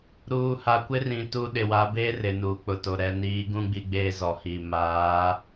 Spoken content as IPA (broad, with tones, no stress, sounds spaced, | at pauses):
ɾ uː˨ h a˨ kʷ ɪ˦ r ĩ˨ t u˦ ɗ ɪ˨ w a˨˦ b e˦ r ɪ˨ n uː˨ k͡p ʊ˨ t o˨ ɾ ɛ˨ n iː˨˦ ɡ ũ˦ ɡ͡b i˦ ɡ͡b eː˦ z ɔ˨ h iː˨ m aː˨˦